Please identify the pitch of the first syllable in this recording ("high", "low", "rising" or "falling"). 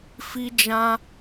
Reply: high